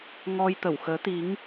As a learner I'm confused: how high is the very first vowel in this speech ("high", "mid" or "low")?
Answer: mid